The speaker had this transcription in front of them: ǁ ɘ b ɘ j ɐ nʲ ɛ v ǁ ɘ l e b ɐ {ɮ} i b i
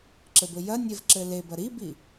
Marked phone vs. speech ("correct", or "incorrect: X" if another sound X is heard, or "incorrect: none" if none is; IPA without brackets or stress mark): incorrect: ɾ